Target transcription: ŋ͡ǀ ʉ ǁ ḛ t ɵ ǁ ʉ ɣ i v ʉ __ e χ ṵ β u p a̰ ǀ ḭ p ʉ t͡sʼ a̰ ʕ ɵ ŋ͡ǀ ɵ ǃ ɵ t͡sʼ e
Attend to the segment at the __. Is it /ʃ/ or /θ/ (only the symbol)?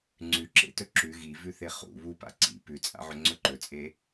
θ